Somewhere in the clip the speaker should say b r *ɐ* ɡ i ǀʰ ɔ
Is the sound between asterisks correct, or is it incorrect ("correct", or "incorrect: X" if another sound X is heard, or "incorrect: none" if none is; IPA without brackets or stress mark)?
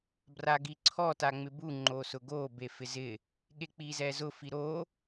incorrect: a